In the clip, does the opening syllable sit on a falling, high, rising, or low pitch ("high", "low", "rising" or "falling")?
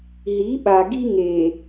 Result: rising